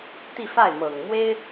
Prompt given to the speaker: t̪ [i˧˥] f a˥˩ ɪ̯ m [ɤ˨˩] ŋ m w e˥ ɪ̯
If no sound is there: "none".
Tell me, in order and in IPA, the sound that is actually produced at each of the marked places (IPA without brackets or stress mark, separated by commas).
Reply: i˥˧, ɤ˨˩